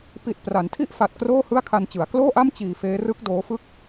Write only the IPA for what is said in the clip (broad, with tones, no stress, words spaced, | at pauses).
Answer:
pi˨˩t̚ pra˩˦ntʰi˥˩ʔ fa˨˩t̚kroː˥˩ hɯ˥˩a̯kʰa˧nt͡ɕɯ˩˦a̯ kloː˥˩ʔa˥˩m t͡ɕiː˧feː˦˥ rɯ˦˥k̚ doː˦˥ fɯ˥˩k̚